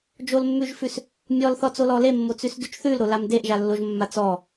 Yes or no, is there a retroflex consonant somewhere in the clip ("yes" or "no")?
no